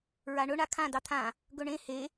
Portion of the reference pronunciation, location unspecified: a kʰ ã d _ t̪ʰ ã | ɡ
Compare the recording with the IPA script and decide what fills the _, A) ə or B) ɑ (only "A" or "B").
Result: B